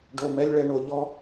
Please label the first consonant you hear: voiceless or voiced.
voiced